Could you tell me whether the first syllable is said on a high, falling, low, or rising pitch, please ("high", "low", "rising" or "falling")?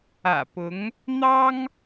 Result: low